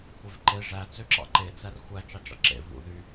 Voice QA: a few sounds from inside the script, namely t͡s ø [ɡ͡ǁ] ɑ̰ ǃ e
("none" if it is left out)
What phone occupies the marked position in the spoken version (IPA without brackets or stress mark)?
ǁ